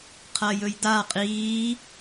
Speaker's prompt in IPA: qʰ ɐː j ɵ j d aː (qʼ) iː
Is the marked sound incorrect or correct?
correct